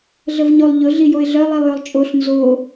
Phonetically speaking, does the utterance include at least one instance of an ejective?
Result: yes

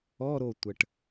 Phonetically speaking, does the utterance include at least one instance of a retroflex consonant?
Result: yes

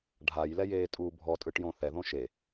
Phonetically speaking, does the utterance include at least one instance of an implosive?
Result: no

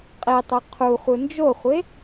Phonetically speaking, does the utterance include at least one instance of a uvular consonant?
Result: yes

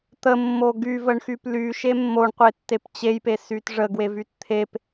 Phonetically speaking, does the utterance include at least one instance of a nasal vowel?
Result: no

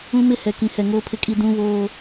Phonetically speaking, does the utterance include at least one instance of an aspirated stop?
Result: yes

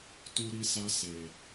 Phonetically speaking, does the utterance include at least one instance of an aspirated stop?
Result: no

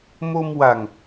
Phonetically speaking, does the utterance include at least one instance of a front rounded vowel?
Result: no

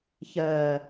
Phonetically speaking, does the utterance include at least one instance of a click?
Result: no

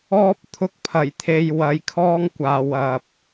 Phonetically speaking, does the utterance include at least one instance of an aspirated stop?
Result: yes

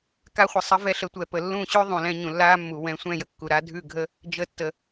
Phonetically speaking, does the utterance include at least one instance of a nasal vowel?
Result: yes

